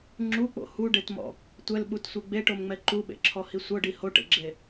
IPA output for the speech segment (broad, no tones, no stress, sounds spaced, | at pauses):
ŋ͡ǁ u k͡p o̰ h u ɖ e t m ɔ̰ | tʷ ɛ l ɓ u t sʷ ɯ ɡ͡b e ʈ o m ŋ͡m ɛ ǃ u ɓ ḛ ǁʰ ɔ h i sʷ ɤ ɖ i h o ʈ ḛ ɡ͡ǁ e